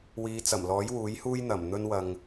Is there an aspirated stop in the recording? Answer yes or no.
no